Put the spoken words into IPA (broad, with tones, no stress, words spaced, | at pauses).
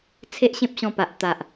t͡sʰe˦ʔɕẽ˦p̚ɕɔ̃˧pa˨ʔ t̪a˨ʔ